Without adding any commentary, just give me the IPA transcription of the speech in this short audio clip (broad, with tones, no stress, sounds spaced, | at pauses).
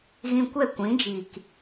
ɣ ĩ˧ kʷ ɛ˦˨ kʷ ĩ˨˦ d͡ʒ iː˨ k